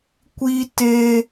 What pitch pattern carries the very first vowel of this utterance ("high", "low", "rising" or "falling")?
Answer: high